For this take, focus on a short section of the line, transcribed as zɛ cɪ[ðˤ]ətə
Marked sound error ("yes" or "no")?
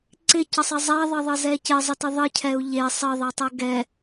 yes